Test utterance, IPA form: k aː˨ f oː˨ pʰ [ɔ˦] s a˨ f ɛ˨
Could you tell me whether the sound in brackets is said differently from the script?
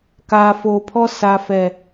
no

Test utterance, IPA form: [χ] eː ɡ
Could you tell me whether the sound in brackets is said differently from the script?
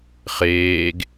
no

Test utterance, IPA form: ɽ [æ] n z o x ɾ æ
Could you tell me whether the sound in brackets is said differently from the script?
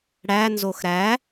no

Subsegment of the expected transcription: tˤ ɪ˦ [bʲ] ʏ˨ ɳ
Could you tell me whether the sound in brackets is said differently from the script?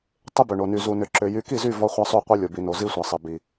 yes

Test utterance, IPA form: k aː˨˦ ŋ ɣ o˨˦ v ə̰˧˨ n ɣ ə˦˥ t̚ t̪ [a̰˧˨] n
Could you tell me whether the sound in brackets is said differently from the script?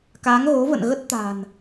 yes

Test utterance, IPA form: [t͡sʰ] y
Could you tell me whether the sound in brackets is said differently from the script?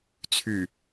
no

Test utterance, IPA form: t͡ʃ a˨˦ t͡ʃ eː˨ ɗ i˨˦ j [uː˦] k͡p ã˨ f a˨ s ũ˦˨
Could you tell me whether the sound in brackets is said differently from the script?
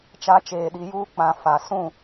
no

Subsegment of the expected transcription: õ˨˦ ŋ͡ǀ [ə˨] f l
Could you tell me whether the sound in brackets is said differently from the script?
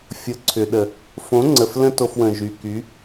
no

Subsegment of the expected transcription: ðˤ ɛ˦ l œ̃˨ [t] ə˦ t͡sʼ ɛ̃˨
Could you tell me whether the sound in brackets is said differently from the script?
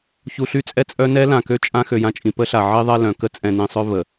yes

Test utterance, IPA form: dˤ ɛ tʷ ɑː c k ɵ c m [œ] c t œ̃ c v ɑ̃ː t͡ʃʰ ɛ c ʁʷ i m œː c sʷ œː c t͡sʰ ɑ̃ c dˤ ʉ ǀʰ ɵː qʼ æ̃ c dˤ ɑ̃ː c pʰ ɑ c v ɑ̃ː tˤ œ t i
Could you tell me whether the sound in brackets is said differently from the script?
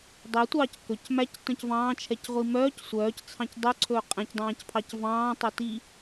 yes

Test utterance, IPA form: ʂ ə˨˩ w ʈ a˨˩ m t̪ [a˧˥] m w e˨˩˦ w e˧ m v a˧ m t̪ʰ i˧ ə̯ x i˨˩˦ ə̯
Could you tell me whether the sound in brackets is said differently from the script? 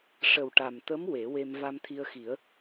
yes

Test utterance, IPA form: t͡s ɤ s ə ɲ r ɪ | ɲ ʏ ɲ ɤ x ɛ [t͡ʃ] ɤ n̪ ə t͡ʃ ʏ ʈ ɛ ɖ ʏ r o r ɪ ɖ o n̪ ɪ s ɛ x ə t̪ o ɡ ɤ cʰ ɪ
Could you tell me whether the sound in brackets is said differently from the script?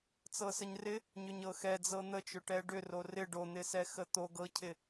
yes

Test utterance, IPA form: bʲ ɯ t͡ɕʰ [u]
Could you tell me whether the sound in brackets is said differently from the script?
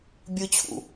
yes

